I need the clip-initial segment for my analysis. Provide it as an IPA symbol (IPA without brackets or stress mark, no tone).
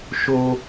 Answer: ʃ